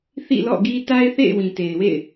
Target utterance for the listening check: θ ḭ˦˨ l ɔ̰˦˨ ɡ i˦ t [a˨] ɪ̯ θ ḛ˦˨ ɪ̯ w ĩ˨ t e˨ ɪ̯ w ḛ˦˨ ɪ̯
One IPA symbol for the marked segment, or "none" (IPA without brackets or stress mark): a˦